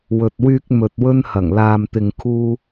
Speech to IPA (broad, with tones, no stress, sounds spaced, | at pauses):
w ɵ˨ t̚ w yː˧ k̚ m ɵ˨ t̚ w ɵ˧ n h ɐ˨˩ ŋ l aː˨ m t̪ ɪ˨ ŋ kʰ uː˧